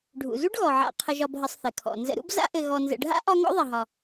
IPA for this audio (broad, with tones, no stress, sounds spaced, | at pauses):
ɖʱ ṵ˩ z u˥ ɖ ɣ ɔ˩ ʕ a̰˨ qʰ ə˨ ʒ ɒ˨ b ɦ ə˨ sˤ θ ɘ˩ kʰ ɔ̰˩ n z ə̰˨ ɾ ṵ˦ b z a̰˦ ʔ ɘ˨ ɣ ɔ˨ n z ə̰˨ ɖʱ a̰˥ ʔ ɒ˦ ŋ ɔ̰˥ ðˤ ɐ˨ ɦ ɒ˨